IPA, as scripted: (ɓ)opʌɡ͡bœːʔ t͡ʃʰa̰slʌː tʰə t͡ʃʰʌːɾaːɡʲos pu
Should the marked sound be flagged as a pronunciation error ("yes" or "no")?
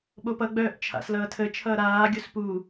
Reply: no